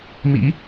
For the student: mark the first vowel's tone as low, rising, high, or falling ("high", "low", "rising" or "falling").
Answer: rising